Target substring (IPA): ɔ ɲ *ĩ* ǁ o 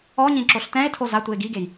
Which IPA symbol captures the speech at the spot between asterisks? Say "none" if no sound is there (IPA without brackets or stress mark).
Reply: ĩ